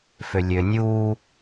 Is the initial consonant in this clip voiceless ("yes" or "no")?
yes